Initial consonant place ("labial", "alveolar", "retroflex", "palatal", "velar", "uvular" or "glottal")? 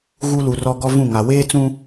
velar